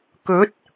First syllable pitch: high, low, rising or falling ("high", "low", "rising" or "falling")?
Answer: rising